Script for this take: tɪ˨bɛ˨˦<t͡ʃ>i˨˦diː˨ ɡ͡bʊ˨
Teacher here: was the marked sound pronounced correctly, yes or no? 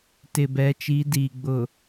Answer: yes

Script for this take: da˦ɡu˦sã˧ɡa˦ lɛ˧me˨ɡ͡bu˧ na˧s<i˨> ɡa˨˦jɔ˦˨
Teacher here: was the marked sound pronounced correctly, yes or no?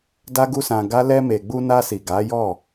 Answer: yes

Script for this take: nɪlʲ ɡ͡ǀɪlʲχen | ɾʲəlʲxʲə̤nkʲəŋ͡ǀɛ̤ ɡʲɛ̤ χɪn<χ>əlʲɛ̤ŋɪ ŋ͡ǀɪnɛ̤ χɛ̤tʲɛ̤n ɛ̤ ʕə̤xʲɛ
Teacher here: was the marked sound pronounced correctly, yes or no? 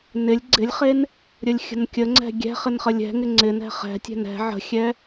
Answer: yes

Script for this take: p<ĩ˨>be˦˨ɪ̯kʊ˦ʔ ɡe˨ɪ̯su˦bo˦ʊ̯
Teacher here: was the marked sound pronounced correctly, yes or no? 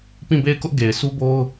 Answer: no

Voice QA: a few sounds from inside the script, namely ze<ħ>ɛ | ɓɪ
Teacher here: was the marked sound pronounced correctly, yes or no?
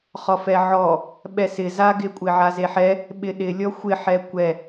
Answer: yes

